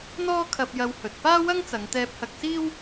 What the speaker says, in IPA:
n̪ɔː˥kʰɐ˧p̚jɐ˧w hɵ˨t̚ paː˥wɐ˥ŋt͡sɐ˨˧ŋt̪ɛː˧p̚ hɐ˧k̚ siː˥w

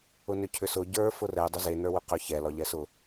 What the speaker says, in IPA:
ʊnʏcʰʏsʊ ɟə˞ fʊrɛ dˤʏze nə˞wʏqʏ çɛ lɒʎɛsʊ

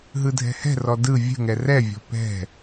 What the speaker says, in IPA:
ɦɯdʱɛ̤hɛ̤rɔ dɯ vʲə̤ŋɛ rɛvʲɔ̤ pɛ̤

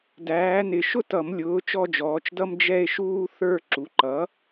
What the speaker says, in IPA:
dæː˩˥nɪ˨˩˦ ʃʊ˥tʌ˨˩˦mlʲʊː˩˥ t͡ʃɔ˥˧d͡ʒɔː˩˥t͡ʃdʌ˥m d͡ʒɛ˥˧e̯ʃuː˥ θə˞˥˧ ǁu˩˥ǃʌ˩˥

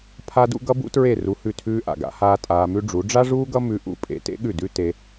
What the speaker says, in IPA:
pʰa˧dṵ˧ ɡʌ˦bṵ˦tɹe˦˨ ru˧hʉ˦˨tʰʉː˦ ʔa̰˨ɡa̰˨˦haː˦ tʼaː˧mʉ˦ɖ͡ʐu˨˦ ɖ͡ʐa˦ʐuː˦ɡʌ˦ mʉ˧ʔṵ˧ pʼḛ˧tḛ˦ ɠʉ˦˨dʉ˦te˧

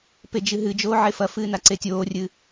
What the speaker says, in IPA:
ped͡ʒɨɦɨd͡ʒoː ʕefɐfɨː naǀetʲoːrʲɨː

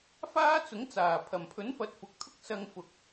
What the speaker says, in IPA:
faː˥t͡sʊ˨˥ŋt͡saː˨˩ pʰɐ˨˩mpʰɵ˨˥n fɐ˨˥t̚fʊ˨k̚t̪ʰʊ˥k̚ sɐ˧ŋfʊ˨k̚

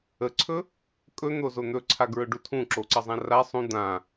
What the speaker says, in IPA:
əǀʰɵ | kʼɵn̪ozo n̪ɵǀʰaɡɹɵɖu tʰũǁoǀəzˤã ra sˤũ d̪ã

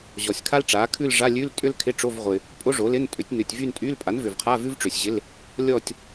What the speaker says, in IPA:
ʑɔ˨sʲkʰa˥lʈ͡ʂa˩˥kʰʉ˥˧l ʐa˧˥˧lʲʉ˧˥˧l tʼʏ˥lkʰɪ˧˥˧ʈ͡ʂo˧˥˧vʁʷɪ˨ | pʼo˥ʐo˩˥lɪ˧˥˧n tʼʏ˩˥tʲnʉ˨tʲvy˥˧n tʼy˧˥˧l pʼa˩˥nvʏ˨vqʰa˧˥˧ vʉ˥vʈ͡ʂʏ˨sʲʑɪ˧˥˧l | lʲɔ˥˧tʲ

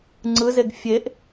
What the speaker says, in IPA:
ŋ͡ǀɯzeɡ fʲeʔ

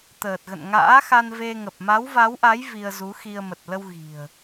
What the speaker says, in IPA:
t̪əː˨˩t̚ɣə̰˧˨n ŋa̰ː˧˥xa˧nve˧ŋə˨˩p̚ ma˨˦wva˨˦wʔa˨˦j vi˧ə̯zu˨˦xi˧ə̯ mə˨˩t̚lə˧w ɣi̤˨˩ə̯

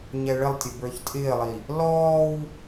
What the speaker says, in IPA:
ɲɛɭɪlˠtʲə bə˞çtʼɪːlˠi | lɔːw

